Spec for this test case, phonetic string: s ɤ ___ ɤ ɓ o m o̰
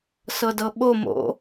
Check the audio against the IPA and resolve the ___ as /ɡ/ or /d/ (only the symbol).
d